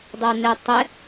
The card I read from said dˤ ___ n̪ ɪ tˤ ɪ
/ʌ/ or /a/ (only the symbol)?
ʌ